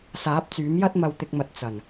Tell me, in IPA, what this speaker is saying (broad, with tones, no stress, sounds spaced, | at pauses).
s aː˨˥ p̚ t͡s yː˨˥ m j ɐ˥ t̚ m ɐ˧ w t̪ ɪ˧ k̚ m ɐ˨˥ t̚ t͡s ɐ˨˩ n